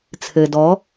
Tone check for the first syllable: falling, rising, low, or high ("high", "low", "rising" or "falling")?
low